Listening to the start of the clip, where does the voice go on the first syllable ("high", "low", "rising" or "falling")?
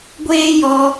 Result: high